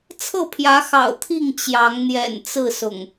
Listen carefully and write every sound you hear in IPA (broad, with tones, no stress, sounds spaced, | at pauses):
t͡sʰ ɤ˥˨ pʰ j ä˨˦ x ɑ̰˨˩ ʊ̯ t̪ʰ i˥˨ ŋ t͡ɕ j ɑ˨˦ ŋ n̪ j ɛ̰˨˩ n t͡s ɹ̩˥˨ s ʊ̰˨˩ ŋ